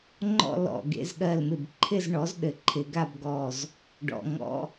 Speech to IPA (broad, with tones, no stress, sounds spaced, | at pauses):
ŋ͡ǃ ɔ̰˥˧ l ɔ̰˧˩ ɡ ḛ˥˧ z ɠ ɜ˧˩ l m ɪ˧˩ b ǃʰ ɪ˥˧ z ɳ ɔ˩˥ z ɗ ɘ˩˥ ǃʰ ɪ˨˩˦ ɡ a˥˧ b ɡ ɔ˧˩ z | ɖ ɔ̰˩˧˩ ŋ ɔ̰˧˥˧